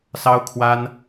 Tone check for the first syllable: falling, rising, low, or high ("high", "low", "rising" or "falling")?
high